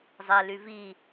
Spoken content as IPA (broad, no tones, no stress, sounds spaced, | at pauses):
zˤ ɛ l y v i